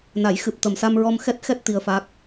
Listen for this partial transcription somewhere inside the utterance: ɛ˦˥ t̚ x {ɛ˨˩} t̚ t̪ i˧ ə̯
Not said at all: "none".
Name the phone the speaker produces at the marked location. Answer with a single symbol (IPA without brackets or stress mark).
ɛ˦˥